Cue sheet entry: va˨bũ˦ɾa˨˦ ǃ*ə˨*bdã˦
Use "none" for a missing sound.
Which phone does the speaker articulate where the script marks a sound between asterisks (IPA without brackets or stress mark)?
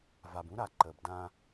ə˨